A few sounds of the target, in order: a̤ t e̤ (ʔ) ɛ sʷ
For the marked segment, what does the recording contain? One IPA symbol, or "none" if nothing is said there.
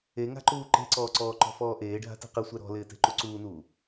q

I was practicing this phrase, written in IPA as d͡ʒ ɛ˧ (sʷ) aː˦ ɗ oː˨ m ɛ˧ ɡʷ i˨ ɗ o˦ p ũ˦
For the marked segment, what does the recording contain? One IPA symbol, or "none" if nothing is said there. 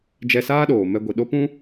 s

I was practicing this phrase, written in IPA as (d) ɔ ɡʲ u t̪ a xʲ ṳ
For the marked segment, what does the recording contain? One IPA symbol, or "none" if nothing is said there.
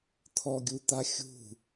t̪ʰ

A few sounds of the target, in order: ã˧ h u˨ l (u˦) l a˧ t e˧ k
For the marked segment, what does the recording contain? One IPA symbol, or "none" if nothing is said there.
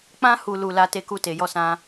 u˨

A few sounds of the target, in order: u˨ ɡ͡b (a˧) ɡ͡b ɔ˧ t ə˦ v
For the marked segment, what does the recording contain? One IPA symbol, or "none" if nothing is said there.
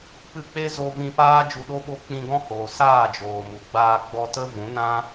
aː˧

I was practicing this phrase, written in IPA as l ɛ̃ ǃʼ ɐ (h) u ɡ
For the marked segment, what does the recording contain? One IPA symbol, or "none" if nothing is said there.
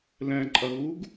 ɣ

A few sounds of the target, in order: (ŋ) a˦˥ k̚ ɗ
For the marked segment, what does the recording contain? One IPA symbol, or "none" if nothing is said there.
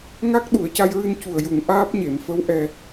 ŋ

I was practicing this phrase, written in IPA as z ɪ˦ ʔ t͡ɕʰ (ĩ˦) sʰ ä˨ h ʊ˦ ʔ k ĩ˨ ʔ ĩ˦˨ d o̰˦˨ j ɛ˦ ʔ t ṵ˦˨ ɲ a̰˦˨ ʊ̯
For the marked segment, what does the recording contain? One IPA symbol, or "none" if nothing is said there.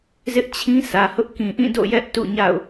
ĩ˦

